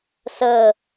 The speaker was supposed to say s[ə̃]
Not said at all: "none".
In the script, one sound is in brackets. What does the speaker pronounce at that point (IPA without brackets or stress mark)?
ə